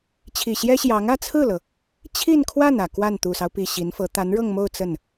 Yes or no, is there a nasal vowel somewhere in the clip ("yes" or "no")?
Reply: no